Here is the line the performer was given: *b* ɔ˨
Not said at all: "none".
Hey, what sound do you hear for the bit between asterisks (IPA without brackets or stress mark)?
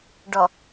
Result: ɖ